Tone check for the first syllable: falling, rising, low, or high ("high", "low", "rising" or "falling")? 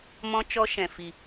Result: high